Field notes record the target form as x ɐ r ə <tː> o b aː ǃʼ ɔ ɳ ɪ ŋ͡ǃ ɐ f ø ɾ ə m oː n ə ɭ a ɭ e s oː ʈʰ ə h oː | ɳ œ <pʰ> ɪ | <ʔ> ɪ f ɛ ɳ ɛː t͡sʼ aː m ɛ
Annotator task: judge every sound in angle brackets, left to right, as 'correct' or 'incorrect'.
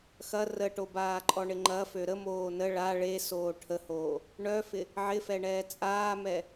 incorrect, incorrect, incorrect

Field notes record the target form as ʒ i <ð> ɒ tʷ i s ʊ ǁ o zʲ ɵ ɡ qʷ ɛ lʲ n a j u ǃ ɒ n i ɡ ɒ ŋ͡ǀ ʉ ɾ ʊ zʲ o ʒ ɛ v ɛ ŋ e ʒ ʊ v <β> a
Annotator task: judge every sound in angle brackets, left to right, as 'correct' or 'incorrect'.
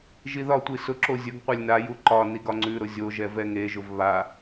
correct, correct

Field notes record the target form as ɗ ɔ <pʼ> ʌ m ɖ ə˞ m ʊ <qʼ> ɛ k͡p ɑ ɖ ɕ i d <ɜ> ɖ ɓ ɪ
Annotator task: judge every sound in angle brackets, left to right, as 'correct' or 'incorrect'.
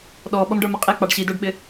incorrect, correct, incorrect

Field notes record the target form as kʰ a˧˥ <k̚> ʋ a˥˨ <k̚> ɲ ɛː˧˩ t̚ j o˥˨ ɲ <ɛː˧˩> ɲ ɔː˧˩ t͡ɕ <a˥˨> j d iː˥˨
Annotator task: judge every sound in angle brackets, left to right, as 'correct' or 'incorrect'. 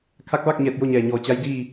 correct, correct, correct, incorrect

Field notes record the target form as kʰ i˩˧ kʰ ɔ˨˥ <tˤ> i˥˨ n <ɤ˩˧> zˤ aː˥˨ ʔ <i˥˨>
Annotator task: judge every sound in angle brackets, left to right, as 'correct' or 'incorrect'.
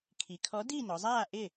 incorrect, incorrect, incorrect

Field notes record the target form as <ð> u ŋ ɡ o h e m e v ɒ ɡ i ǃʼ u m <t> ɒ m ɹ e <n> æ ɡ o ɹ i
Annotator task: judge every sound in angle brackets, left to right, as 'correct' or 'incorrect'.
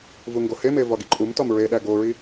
incorrect, correct, incorrect

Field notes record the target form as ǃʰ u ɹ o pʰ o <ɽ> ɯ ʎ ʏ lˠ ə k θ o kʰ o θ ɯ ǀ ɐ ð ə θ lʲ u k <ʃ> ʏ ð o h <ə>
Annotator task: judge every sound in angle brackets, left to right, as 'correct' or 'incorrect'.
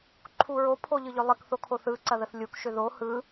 incorrect, correct, incorrect

